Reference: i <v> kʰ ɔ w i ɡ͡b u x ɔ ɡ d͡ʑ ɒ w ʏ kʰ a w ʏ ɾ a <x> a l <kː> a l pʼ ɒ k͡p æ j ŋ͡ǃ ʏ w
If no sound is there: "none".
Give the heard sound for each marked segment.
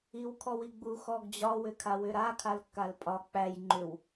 w, kʰ, kː

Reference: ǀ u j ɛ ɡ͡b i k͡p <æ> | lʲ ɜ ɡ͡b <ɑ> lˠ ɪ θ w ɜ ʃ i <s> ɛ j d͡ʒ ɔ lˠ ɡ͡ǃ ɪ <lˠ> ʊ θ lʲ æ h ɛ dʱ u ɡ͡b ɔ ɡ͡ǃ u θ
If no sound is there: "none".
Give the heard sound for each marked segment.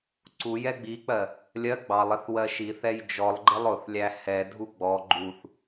ɜ, ɑ, θ, lˠ

